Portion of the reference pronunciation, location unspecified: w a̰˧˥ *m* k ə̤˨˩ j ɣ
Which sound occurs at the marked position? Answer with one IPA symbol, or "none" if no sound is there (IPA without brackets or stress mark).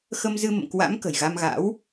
m